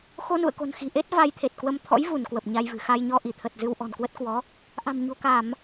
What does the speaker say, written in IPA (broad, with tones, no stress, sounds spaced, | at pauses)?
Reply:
x o˧ n ṵ˧˨ ə̯ k o̤˨˩ n x i̤˨˩ ʔ e˦˥ t̚ v a˧ j t̪ʰ e˨˩ t̚ k w ə˧ m t̪ʰ ɔ̰˧˥ j v u˧˩ n k w ə˨˩ p̚ ɲ a˧ j v ɨ̤˨˩ x a˧ j ɲ ɔ˧ ʔ i˧˩ t̪ʰ ə˨˩ t̚ z ɨ˧ w ʔ ɔ̤˨˩ n k w ə˦˥ t̚ k w ɔ˨˦ | ʔ a̤˨˩ m ɲ o̤˨˩ k a˧˩˨ m